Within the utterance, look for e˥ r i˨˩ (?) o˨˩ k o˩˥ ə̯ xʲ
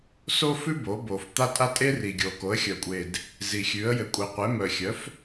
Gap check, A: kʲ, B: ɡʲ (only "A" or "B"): B